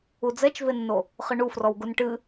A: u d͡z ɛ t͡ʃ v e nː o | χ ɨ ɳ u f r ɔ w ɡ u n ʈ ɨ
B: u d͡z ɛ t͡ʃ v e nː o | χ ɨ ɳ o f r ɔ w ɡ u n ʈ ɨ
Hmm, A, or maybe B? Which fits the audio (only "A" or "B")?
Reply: A